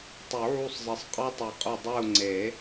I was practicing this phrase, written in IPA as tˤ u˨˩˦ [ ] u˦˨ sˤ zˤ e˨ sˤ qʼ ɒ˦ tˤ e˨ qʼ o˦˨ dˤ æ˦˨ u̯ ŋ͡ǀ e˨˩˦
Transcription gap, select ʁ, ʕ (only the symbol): ʕ